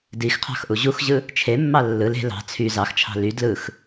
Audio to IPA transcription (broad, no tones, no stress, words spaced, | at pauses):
dixqʰɑ̤xʔu ʑuxʑɯ | t͡ʃʰemːɑ lːɯl e̤ lɑ̤ t͡sʰy zɑxt͡ʃʰɑ̤ ly dlɯx